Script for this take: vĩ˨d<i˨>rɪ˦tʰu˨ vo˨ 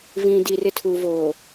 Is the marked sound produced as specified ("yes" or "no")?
yes